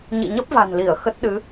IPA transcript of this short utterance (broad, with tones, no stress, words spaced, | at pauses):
ɲḭ˧˨ɲə˦˥p̚va̤˨˩nli˧˩ə̯ xə˦˥t̚ɗɨ˨˦